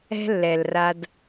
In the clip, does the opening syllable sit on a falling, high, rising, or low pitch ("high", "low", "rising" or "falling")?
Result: high